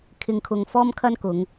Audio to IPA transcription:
kʰ ɪ˧ ŋ kʰ ʊ˧ ŋ f ɔː˥ m kʰ ɐ˥ n k ʊ˨˧ ŋ

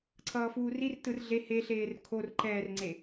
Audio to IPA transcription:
ǀʰ ʌː f uː r i r t ɯ r ɮ e h e ɬ eː r kʰ o r ǃ ɛː r ŋ͡ǀ e

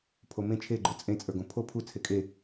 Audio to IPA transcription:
pʰ o m ẽ t͡ʃʰ e ɡ͡ǃ o t͡sʼ ẽ t͡sʼ ə˞ ɡ õ pʰ o pʰ u t͡sʰ e kʼ e

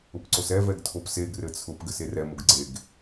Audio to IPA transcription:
ʊ p ǀ o s ɛ v ɛ ɡ tʰ o p s e ɡ r ɘ t͡sʰ ʊ p ɡ ɘ s e r ɛ m ʊ ɡ ɡ͡ǀ e ɡ

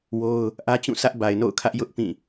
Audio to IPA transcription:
w o˦ ʊ̯ | ʔ ä˦ t͡ɕ ũ˦˨ s ä˦ ʔ b a˨ ɪ̯ n o̰˦˨ ʊ̯ kʰ ä˦ ʔ j ʊ˦ ʔ p ĩ˦˨

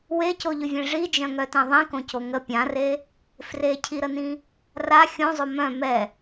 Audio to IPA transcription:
w e c o ʎ ʏ vʲ ẽ ʐ i d͡ʒ œ̃ ŋ œ t ɛ̃ ðˤ ĩ k õ c o ŋ ə pʲ ã r e | f r e cʰ i ɾ ə n ĩ | r a xʲ õ zˤ o m œ̃ m ɛ

